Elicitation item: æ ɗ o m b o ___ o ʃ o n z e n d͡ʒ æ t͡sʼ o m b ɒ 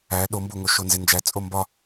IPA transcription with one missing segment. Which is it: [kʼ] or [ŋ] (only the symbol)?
ŋ